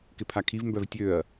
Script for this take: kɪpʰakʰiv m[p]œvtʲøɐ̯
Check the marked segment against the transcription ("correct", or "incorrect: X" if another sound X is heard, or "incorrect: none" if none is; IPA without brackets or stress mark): incorrect: b